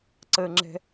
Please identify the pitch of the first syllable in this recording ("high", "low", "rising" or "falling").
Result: high